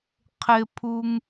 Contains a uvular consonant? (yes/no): yes